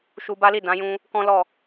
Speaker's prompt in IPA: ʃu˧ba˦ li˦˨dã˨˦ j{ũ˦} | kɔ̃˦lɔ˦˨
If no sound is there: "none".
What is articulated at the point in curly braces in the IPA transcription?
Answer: ũ˦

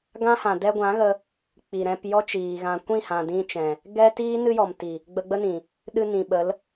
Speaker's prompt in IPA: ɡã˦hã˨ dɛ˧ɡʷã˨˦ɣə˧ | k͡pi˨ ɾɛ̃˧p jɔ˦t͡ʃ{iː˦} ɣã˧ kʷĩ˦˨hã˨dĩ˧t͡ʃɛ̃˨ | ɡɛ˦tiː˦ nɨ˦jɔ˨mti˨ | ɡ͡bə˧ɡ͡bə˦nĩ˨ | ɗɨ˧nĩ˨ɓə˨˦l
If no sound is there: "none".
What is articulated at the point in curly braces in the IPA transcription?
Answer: iː˨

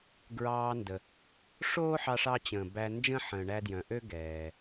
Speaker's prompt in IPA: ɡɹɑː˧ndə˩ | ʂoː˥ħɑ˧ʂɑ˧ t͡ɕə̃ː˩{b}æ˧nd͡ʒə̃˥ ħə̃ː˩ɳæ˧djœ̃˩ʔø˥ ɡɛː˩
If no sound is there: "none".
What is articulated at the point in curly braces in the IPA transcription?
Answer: b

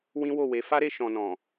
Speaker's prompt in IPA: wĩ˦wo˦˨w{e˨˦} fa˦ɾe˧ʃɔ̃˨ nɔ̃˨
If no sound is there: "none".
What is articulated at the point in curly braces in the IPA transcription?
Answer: e˨˦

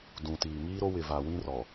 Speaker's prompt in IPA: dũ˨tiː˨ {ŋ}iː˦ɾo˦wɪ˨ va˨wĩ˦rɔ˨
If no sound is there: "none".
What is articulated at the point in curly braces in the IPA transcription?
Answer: ŋ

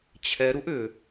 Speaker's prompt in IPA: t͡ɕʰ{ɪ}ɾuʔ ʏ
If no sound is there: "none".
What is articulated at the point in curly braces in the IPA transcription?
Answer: ɛ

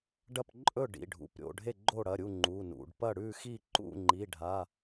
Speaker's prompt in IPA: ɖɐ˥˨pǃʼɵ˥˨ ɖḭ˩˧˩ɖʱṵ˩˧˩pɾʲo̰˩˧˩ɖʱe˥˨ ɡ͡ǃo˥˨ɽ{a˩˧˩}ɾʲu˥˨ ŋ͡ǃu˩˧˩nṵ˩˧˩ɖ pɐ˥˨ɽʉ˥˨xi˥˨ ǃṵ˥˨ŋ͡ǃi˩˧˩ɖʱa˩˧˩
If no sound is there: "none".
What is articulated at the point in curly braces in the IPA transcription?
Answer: ɐ˩˧˩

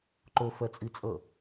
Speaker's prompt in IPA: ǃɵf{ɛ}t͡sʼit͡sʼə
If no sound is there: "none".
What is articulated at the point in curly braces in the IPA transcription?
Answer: ɛ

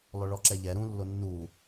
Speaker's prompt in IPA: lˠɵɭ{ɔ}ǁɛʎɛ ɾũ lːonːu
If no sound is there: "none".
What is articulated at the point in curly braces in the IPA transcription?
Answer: ɔ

